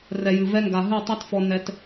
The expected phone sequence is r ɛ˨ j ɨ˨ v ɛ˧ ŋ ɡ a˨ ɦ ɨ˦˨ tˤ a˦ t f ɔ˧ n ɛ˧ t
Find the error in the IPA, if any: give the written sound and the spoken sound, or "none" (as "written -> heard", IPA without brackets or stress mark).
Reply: none